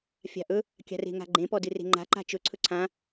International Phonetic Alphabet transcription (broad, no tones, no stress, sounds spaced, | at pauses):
fʲ a̤ ʔ ɵ | kʲ a̤ r e̤ ŋ a̤ ɡ͡ǃ ẽ p ɔ d ɨ r e̤ ŋ͡ǃ a̤ ǃ a̤ t͡ʃ ɵ ǀʰ ɵ ǀʰ ã